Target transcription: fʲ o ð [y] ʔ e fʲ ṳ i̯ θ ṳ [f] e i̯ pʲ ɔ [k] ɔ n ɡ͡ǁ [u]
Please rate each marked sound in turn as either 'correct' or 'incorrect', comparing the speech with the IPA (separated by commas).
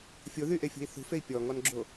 correct, correct, incorrect, incorrect